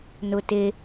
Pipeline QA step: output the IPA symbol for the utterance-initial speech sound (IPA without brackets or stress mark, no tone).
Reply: n